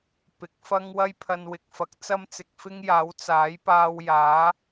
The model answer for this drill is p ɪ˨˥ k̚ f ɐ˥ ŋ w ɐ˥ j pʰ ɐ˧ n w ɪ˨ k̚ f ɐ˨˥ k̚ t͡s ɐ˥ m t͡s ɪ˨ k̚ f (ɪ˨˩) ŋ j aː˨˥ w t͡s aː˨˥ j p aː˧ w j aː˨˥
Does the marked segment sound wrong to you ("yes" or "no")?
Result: yes